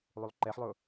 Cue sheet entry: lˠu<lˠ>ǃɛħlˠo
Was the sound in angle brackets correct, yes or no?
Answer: yes